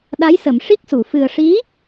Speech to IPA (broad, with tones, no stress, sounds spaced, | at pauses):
ɗ a˧˥ j s ə˨˩˨ m ʂ i˦˥ k̚ s u˨˩˨ f ɨ˨˩ ə̯ ʂ i˧˥